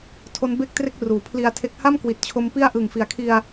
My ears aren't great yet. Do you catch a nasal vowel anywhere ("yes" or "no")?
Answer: no